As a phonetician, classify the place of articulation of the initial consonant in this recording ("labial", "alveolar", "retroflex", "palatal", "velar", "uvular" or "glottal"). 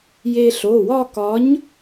palatal